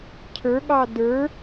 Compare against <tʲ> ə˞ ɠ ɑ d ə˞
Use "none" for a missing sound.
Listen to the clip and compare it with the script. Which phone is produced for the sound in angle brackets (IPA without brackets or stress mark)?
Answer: cʰ